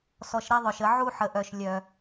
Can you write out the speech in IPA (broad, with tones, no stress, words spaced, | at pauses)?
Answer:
sɔ˨ʃɾɛ˦ðˤœ˨ʃə˨˦ ʕu˦ħə˨ʔœ˨ʃ lʲœ˨